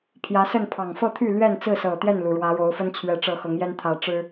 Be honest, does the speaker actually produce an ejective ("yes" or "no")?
no